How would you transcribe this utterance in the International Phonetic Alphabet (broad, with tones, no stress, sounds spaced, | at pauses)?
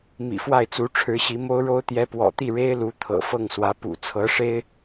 m ḭ˨˩ f w a˥˩ ɪ̯ t͡s u˧˥ ʈ͡ʂʰ ɻ̩˧˥ ɕ i˧˥ m o˥ ʊ̯ ɻ o˥ ʊ̯ t̪ j ɛ˧˥ p w ɔ̰˨˩ t̪ i˥˩ ɻ e˥ ɪ̯ l u˧˥ t̪ʰ ɤ̰˨˩ f ɤ˥˩ ŋ s w ä˧˥ p ṵ˨˩ t͡sʰ ɤ˧˥ ʂ e˥ ɪ̯